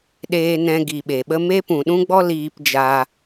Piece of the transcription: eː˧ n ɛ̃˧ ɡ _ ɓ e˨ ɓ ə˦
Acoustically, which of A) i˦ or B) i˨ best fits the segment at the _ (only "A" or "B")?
B